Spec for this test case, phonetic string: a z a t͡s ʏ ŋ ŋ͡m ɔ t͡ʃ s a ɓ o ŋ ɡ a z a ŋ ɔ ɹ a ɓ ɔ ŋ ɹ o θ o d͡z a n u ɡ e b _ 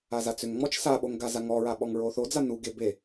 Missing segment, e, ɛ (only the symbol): e